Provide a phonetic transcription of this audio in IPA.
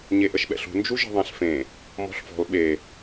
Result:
ɲ e ʔ ə ʃ ɓ ɛ̰ ɬ ṳ n d͡ʒ u ʒ ə̤ ðˤ ɛ̃ ɬ f ẽ | m ɔ̤ ɬ f ɔ̤ l ɓ e

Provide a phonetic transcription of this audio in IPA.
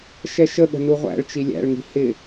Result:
ʃ ɛ ʃ ə ɠ ə̤ n u ʁʷ æ̰ ɭ t͡ʃ i lʲ æ̰ ɭ ŋ i̤ h ɪ

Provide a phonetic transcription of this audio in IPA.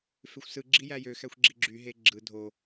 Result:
f e xʷ s ɯ ɡ͡ǁ i j æ j ø x æ xʷ ɡ͡ǁ i ɡ͡ǁ y ɦ e ɡ͡ǁ ɯ dʱ o

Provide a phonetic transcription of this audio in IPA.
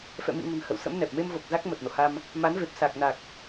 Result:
f ɛ̰˧˨ m ḭ˧˨ ŋ ə̤˨˩ n h ə̰˧˨ w s ə̰˧˥ m n ɛ˨˩ p̚ m e˧ m v o˨˩ k̚ z a˦˥ k̚ m ə˨˩ t̚ n o̰˧˨ h a˧ m | m a˨˦ n v e˨˩ p̚ s a˨˩ k̚ n a˨˩ k̚

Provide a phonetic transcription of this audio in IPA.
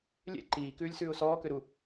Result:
lʲ ḛ ǃ iː k ʉː lʲ s ʉː ʊ̯ s ɔː k ø ɾ u

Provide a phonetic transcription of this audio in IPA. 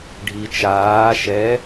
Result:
ɖʱ i t͡ʃ aː ʃ ɛ

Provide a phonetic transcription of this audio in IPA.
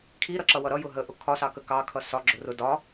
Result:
kʰ i ɾ ʌ ǁ ʌ w ʌ ɾ ʌ j ʊ ɦ ə ʔ ʊ kʰ ɒ s ɑ k ə k ɑ kʰ ʌ s ɒ ɡ͡ǁ ʊ r ʊ d ɒ

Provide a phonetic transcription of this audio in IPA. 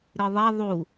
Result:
ɾ ɨ ðˤ ɛ ðˤ u

